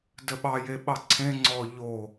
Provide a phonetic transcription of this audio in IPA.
d ə ɓ ɑ j e ɓ ɑ ǀʰ ẽ ŋ͡ǀ ɔ ʎ o

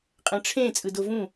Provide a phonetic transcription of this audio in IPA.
qʼ ɛ̃ ʈ͡ʂʰ ẽ t͡sʼ ɯ d o v ũ

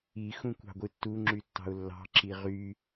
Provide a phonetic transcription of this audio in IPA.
i x ũ kʷ ɑ̤ ɡʷ ɯ tː u ŋ͡ǁ y tː ɑ̤ ʊ̯ lː ɑ̤ ǁ i ʁ y

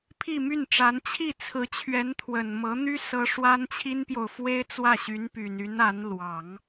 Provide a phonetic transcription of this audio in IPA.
pʰ i˥˧ m y˥˩ n ʈ͡ʂ a˧˥ n t͡ɕʰ i˥˩ t͡sʰ ɹ̩˧˥ t͡ɕʰ ɥ ɛ˧˥ n t̪ʰ w ə˨˩ n m ɤ˧˥ n̪ y˥ s ɤ˥ ʂ w a˥ n t͡ɕʰ i˥ n p j o˨ ʊ̯ f w e˥ ɪ̯ t͡s w ä˥˩ ɕ y˧˥ n p y˨˩ n y˧˥ n a˧˥ n l w ɑ˨˩˦ ŋ

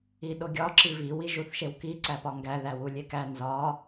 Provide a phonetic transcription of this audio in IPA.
i ɗ o ɡʲ ɒ ǁ i v i w i ʒ u θ ʃ e w k i ǀ æ p ɒ ŋ ɡ æ ð æ w u lʲ e k æ n z ɒ

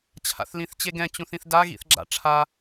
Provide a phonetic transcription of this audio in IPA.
t͡ɕʰ a̰ θ l ĩ θ t͡ɕ e ɡ ɛ̃ t͡ɕ ũ θ ĩ θ d a ɣ ḭ θ ɡ͡ǁ a̰ ʈ͡ʂʰ a

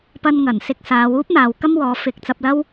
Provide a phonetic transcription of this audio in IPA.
p ɐ˧ n ŋ ɐ˨˩ n s ɪ˧ k̚ s aː˨˧ w uː˥ p̚ n̪ aː˨ w k ɐ˥ m w ɔː˨˧ f ɪ˨ k̚ t͡s ɐ˧ p̚ l ɐ˥ w

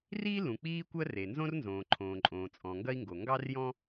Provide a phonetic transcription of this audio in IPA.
r iː˥ l ũ˩ k͡p iː˥ kʷ ɜ˥ r e˩ n z õ˥ r n z õː˩ ǃʰ õː˩ ǃʼ õː˩ t͡sʼ ɔ̃˩ ŋ ɡ ɐ˥ i̯ ŋ ɡ o˩ ŋ ɡ ɑ˥ r j ɔ̃˥

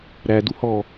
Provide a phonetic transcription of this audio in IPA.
ɾ æ d u h ɔ

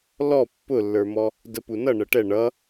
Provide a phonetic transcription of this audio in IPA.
l ɔ pː ʊ lː ə˞ m ɔ | d ə p u n ʌ ɳ ə ʈ ɛ ɳ ʌ

